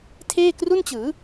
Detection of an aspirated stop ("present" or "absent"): present